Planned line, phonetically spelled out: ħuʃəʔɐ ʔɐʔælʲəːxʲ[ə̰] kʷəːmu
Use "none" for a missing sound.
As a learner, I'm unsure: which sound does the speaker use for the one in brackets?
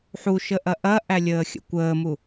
ə̰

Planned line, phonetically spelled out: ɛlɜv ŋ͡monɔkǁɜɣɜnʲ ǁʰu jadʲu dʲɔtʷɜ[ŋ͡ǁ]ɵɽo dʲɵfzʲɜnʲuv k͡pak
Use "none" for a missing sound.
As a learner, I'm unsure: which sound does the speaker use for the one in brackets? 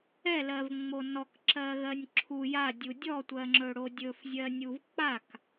ŋ͡ǁ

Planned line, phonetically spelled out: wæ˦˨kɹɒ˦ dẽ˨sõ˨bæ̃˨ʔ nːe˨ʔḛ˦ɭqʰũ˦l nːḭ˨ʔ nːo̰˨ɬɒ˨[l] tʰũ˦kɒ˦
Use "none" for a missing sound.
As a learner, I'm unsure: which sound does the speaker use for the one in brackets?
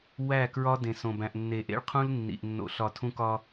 none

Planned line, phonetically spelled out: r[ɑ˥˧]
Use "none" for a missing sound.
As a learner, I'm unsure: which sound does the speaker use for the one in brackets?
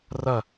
ɐ˥˧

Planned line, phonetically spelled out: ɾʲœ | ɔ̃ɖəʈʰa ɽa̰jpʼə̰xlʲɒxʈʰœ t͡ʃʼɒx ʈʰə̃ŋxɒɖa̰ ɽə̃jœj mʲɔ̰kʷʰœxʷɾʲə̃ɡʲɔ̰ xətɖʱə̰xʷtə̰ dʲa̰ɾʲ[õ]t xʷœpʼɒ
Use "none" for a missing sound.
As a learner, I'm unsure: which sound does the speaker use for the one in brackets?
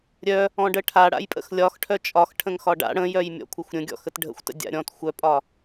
ɔ̃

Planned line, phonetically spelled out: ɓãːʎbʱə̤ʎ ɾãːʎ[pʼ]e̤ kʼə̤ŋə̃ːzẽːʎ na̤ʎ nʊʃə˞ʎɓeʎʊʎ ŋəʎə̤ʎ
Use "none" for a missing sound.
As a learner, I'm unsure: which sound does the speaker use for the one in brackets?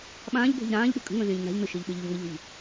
ɓ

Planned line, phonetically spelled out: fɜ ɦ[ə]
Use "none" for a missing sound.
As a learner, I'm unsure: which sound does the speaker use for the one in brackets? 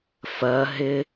ɪ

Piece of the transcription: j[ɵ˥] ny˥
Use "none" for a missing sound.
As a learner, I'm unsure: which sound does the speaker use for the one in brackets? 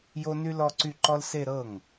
o˥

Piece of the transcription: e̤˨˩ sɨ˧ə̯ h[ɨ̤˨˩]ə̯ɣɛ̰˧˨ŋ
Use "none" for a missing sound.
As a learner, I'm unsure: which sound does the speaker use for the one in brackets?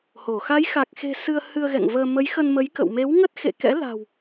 ɨ˧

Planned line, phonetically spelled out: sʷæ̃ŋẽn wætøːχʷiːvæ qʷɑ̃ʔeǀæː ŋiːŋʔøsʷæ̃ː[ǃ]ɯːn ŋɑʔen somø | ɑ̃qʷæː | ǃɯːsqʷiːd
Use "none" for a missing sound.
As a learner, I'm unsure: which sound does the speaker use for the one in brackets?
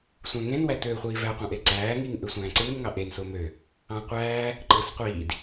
ǀ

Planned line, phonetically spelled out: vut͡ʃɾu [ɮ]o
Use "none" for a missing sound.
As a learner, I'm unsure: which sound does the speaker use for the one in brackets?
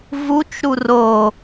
r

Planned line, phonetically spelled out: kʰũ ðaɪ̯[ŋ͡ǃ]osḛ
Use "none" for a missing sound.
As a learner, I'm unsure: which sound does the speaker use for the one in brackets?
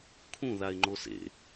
ŋ͡ǃ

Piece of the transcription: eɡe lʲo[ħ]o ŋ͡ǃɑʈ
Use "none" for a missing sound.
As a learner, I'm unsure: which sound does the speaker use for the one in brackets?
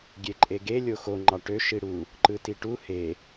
x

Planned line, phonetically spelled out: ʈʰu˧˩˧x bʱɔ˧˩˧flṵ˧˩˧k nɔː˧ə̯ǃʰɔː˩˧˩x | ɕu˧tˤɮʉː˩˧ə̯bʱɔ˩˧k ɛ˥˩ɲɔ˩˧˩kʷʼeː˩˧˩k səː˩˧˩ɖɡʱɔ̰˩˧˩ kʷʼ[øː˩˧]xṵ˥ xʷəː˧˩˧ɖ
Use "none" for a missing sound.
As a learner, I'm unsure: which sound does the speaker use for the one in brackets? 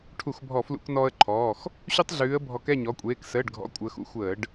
əː˩˧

